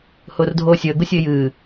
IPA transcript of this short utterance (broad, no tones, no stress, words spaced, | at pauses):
hʊːrdʱoːsʲəː ɡʊsʲəɪ̯jɨː